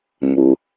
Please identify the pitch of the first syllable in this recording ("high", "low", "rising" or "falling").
low